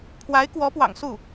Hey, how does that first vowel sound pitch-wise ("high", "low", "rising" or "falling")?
rising